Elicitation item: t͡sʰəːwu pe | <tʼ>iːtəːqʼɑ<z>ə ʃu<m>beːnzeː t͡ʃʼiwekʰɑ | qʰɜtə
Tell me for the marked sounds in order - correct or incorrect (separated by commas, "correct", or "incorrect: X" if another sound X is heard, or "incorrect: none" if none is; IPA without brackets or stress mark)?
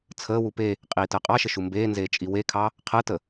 incorrect: qʼ, incorrect: ʃ, correct